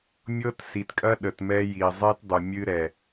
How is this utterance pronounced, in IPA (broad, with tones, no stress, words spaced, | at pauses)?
mʲɤ˦tsi˨tkʼɐ˦ ɗə˨tmɛ˦ ji˨zˤe˦t dˤu˨mʲɨ˦ɾɛ˨